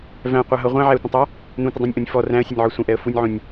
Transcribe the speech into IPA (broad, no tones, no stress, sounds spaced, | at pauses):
v æ̃ qʷ æ ɦ ʌ ʁʷ æ̃ ʕ æ ə̯ tʷ ə̃ tˤ æ | n ũ tʷ ə dˤ æ̃ nʲ ʔ ũ nʲ f ɔ r æ̃ ə̯ sʲ ə nʲ ʕ ɔ sʷ ə̃ ʔ ɛ ə̯ f u nʲ ʕ ũ nʲ